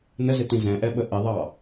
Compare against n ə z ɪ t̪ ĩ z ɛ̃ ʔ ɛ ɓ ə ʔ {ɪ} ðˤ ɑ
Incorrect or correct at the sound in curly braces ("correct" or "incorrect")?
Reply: correct